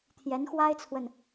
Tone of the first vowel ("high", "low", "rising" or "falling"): rising